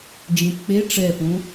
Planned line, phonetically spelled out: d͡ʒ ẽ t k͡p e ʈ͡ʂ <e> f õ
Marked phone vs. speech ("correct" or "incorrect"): incorrect